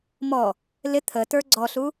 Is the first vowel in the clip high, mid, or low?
mid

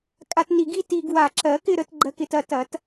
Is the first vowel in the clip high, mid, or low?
low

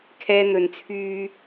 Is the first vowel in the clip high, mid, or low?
mid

